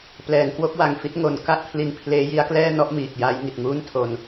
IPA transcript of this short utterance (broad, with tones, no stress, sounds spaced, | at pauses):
p l ɛː˩˦ ŋ k w o˦˥ k̚ w a˨˩ ŋ f i˦˥ t̚ ŋ o˩˦ n k a˥˩ ʔ pʰ l i˧ n pʰ l eː˦˥ j i˦˥ a̯ k l ɛː˥˩ n ɔ˥˩ ʔ m iː˨˩ k̚ j aː˦˥ j ŋ i˨˩ t̚ ŋ uː˥˩ n tʰ o˧ n